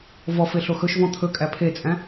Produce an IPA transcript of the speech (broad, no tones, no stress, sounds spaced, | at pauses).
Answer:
v ɔ f e ɬ o x ɵ ʃ v ɔ̃ t̪ʰ ɵ kʼ æ pʰ e t͡sʼ æ̃